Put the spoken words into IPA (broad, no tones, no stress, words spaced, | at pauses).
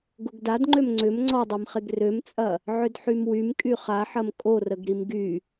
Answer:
ɡʊɡdadŋ͡ǃøm ŋ͡ǀʏm ŋ͡ǀɔdˤemχeɡ rømt͡sʼɐ | ʕʏdħymwym kʼyχaħɐm kʼorəɡɾim ɡy